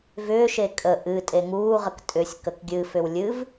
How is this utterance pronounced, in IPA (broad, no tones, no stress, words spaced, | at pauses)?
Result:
vʏːʃe kʼə ʔɨ tʼeŋuːʁək tʼʏsʲ kəkɡʲɨfʏw lʲɨv